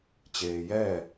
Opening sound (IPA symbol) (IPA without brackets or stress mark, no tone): t͡ɕ